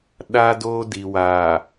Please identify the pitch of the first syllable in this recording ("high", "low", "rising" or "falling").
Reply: high